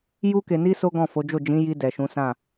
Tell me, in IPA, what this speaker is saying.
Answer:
ju˦ke˧ni˦ so˦ɡɔ̃˦˨fo˨˦d͡ʒo˦˨ d͡ʒĩ˨˦ji˧ dɛ˨ʃũ˨˦sã˦˨

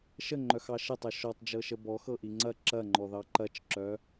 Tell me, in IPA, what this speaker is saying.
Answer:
ʃəŋ͡ǃœxɑ ʃətˤɤ ʃɔtˤd͡ʒɤʃə bɔxɤʔi ŋ͡ǀɐ ǁɐŋ͡ǃɔðɑ ǃɐt͡ʃǁœ

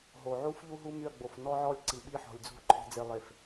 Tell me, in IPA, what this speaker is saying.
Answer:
ɦo˨ʕu˦fʎu˦ ɦu˦my˦˨ɐ̯ɡ͡bo˨f nɔ˦ʕɔ˦lʲ ǀi˨ɓi˦ħɔ̤˨lʲd͡zṳ˦˨ ǃʰe̤˨d͡ze˨lˠe˨f

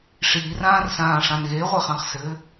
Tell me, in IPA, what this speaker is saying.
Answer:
ʂiːrãːrsãː ʂãnɣeʁʷe χɑ̃χsɘ

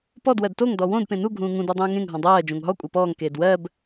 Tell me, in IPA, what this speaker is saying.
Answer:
pɔd wɜdtoŋ dɔwõd pẽnu ɡʱũːŋũ dodˤũːŋẽŋ ɦɔ̃dˤɜː d͡ʒõŋɦɔ kʷʼɜpɔːŋ keːdwɜb

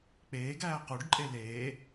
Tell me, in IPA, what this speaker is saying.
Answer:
k͡peːɡæː quɖǃʼe leː

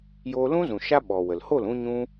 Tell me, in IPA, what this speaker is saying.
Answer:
joː˧lũ˦zũ˨ ʃa˦ ɓɔ˨ wə˨l ho˦˨lũ˧ ɲũ˦

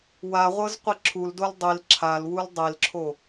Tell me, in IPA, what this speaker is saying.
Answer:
waʁʷɤz qʷiǁʰuldol dˤil ǁʰalwul dˤilǁʰo

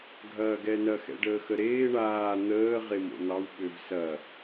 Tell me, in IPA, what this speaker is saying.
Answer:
ɡʱɐːɡɛnɐ xɛ̰ɖəːxəɾeː ɳaː n̪əː ʁemo̰n̪ɑw ɓøvsɐ

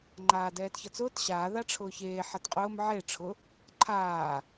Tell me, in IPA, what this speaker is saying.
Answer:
ŋ͡ǃaːdɛːtçʌt͡sʊːt ɕaː ðaʈ͡ʂʰʊːçeː ħatqʼʊːm ʕe ʈ͡ʂʰʊ | ǃʰaː

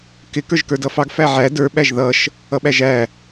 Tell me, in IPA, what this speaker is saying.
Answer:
kɪ kə˞ʒkə˞dʌfɑɡ fæʕæ də˞ ɓæʒðʌʃ | ʌɓæʒæ

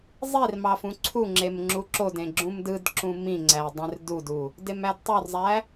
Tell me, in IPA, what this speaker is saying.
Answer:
zˤir mɑfũǀʰuŋ͡ǁem ŋ͡ǁuǁodẽ ɡ͡ǁũmdɯdǁũ mĩŋ͡ǀæ dˤẽrdudu | demædtˤorzˤæ

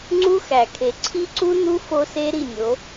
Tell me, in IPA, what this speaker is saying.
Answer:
ŋ͡ǀu˦xæ˨kʰe˨ ǀʰi˦ǀu˦nu˦ fo˦se˦ ɾi˦˨nʲo˨˦

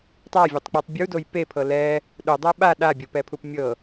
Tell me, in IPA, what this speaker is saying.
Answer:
tˤavʲetˤk͡petˤ bʲudoj pepʰɤ lɛ | ɗudˤɯ ɓa ɗabʲopɛpʰup mʲɤ

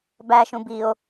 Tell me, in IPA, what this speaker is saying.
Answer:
bæʃũ bio̯

